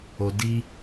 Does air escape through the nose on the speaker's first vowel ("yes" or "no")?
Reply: no